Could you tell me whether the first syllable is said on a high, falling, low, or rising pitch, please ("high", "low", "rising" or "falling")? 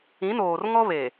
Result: rising